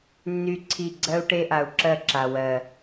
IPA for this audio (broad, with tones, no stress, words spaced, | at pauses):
nːy˦ǀʰi˦˨ ɡ͡ǀɜ˦u̯ʈe˦ʔa˨u̯ ǁɜ˦˨ǁa˨wɜ˨